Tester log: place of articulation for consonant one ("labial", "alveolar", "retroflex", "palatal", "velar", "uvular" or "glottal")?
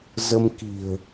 alveolar